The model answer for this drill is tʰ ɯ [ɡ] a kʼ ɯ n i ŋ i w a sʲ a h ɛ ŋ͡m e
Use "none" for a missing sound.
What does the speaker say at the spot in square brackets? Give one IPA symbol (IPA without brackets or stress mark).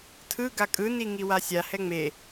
ɡ